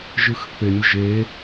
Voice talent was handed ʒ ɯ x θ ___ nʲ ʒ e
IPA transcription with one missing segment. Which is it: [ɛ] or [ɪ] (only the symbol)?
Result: ɪ